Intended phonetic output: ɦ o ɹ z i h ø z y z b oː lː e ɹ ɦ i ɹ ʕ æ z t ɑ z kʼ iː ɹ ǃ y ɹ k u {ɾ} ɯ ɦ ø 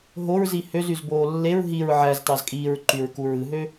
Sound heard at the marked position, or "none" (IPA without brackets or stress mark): ɹ